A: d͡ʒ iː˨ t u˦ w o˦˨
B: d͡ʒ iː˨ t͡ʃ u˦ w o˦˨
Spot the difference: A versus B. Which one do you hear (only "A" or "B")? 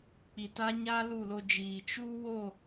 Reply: B